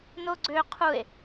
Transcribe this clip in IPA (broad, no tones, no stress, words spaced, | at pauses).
noɡ͡ǀø qʰue̯